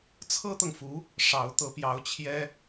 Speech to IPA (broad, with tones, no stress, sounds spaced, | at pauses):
t͡sʰ ɤ˥ t̪ ɤ˨ ŋ f u˧˥ | ʂ ɑ˧˥ ʊ̯ t̪ ɤ˧˥ p j ɑ˧˥ ʊ̯ t͡ɕʰ j ɛ˥